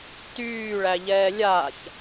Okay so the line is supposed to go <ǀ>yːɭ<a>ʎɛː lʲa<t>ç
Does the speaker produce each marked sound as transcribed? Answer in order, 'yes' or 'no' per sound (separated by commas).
no, no, no